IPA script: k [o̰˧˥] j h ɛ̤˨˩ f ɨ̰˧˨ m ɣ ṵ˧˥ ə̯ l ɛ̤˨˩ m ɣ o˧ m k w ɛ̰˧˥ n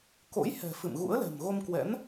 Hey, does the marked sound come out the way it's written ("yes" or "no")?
yes